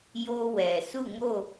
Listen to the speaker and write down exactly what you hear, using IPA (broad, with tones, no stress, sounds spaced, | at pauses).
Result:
j o˦ w ɛ˨ s u˦˨ ŋ o˦˨